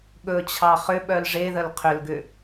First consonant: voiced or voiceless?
voiced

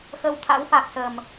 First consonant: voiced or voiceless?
voiceless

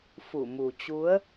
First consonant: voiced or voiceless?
voiceless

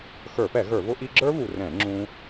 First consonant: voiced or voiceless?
voiceless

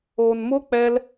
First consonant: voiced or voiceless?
voiced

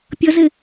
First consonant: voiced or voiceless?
voiceless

